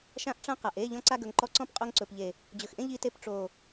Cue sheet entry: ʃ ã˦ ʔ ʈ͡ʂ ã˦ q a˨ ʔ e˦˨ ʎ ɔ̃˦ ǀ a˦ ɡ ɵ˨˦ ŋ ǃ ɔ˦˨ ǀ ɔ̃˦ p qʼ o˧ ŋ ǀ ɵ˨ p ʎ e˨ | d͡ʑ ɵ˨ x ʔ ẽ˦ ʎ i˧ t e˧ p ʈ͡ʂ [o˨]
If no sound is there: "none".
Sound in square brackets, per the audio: o˨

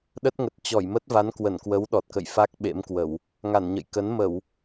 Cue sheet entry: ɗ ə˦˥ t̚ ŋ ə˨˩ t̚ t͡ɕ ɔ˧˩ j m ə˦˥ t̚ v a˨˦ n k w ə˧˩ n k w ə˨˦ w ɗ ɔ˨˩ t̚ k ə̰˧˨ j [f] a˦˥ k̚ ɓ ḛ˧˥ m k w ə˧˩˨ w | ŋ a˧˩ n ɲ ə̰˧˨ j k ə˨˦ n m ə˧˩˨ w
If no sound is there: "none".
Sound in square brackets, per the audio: f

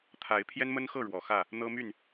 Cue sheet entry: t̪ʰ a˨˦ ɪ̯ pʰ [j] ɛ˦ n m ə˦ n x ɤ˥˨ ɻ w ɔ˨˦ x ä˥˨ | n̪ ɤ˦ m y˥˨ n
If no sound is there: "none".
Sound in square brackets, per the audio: j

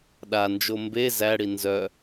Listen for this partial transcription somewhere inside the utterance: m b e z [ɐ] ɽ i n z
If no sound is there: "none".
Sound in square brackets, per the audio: æ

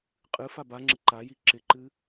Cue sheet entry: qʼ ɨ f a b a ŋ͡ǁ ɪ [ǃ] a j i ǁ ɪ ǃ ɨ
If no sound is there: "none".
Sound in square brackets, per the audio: ǃ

